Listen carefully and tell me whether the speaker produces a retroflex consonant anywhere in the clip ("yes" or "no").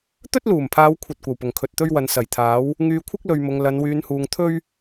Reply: no